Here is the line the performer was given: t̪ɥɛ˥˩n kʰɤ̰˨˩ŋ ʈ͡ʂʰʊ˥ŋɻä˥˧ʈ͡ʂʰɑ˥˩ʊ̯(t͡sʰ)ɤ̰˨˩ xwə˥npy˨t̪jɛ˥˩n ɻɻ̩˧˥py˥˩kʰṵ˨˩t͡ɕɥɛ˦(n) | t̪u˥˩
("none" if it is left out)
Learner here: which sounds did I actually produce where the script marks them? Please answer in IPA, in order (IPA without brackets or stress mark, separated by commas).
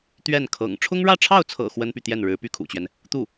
t͡sʰ, n